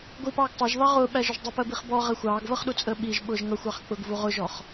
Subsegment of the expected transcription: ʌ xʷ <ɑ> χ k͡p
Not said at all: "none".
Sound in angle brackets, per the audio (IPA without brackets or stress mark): ɑ